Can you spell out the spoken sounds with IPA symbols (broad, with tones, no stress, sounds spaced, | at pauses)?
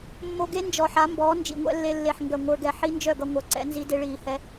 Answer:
mː o˧ ɡ e˦ n d͡ʒ ɔ˨ ħ a˨˦ m b ɔː˨˦ n d͡ʒ ḭ˨ ŋʷ ɛ̰˧ lː e˧ lː e˨ ħ ŋ ɡ œ˨ ŋʷ ə˞˧ ɡ ɛ˧ ħ i˦ n d͡ʒ œ˦˨ ɡ ʌ˧ ŋʷ œ˨ ǀ ɛ̰˦ n z i˦ d e˦ ɭ iː˧ h ɛ˦